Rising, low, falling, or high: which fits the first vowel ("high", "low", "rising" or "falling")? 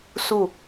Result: falling